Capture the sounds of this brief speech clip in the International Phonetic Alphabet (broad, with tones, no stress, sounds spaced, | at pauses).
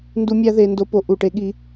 n d u˦ mʲ æ˦ ð e˨˦ n d o˦ p o˦ ʔ u˨ ʈ e˦ ɠ i˦